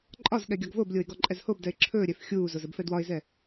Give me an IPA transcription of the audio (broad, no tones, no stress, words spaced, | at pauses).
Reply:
ǃʼɒzɠɛ ɡʲɒɡvoblʲoɪ̯ ɡɔǃʼɛzhobdɛɪ̯ ǁʰɵːɾʲɛf xʲuːzoz əbfɛdwɒɪ̯zɛ